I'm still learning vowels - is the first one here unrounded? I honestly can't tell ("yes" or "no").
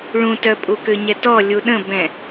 no